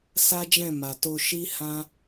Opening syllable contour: high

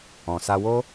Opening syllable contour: low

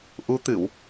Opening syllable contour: rising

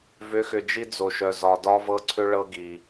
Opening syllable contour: rising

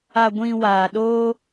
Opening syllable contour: low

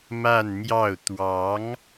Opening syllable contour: falling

